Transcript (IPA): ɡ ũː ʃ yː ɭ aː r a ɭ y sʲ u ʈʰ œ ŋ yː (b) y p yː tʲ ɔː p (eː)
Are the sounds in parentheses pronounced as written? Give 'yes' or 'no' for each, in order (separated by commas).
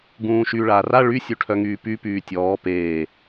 no, yes